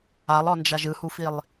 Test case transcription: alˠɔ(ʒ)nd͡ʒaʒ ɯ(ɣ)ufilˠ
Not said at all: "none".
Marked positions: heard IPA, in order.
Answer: none, h

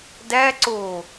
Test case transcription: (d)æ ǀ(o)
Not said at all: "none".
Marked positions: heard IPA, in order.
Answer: d, o

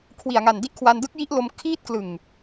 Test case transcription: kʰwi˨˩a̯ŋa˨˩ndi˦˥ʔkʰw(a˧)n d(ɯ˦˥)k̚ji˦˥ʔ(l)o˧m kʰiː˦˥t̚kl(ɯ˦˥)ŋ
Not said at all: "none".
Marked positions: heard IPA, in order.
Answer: a˧, ɯ˦˥, l, ɯ˨˩

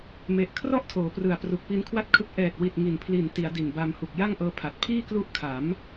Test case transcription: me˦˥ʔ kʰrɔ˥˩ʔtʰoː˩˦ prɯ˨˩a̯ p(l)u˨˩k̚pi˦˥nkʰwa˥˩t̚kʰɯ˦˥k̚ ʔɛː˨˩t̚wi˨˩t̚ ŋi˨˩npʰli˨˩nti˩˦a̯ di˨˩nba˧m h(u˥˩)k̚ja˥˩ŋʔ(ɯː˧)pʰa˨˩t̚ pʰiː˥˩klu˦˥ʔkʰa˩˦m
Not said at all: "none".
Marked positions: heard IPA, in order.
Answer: r, u˨˩, ɤː˧

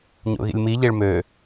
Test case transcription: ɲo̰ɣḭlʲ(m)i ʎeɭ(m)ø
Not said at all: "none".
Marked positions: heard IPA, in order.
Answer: m, m

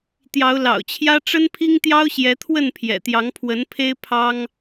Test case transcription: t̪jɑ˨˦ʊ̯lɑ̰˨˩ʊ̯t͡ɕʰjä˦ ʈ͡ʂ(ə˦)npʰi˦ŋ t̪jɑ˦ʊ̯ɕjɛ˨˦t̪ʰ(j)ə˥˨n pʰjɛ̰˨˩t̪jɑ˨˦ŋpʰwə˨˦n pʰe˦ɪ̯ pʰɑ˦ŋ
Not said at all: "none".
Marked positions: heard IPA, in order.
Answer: ə˦, w

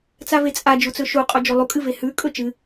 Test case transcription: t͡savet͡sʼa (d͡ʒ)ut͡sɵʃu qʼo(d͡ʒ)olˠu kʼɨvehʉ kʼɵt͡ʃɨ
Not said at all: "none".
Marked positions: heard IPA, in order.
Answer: d͡ʒ, d͡ʒ

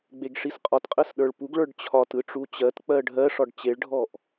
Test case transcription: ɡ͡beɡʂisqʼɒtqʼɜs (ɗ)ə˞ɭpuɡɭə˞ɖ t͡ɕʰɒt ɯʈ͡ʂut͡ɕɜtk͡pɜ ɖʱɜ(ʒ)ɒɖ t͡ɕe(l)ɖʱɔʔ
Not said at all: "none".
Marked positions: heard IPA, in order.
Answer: ɗ, ʂ, ɭ

